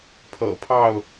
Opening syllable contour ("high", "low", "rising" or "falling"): low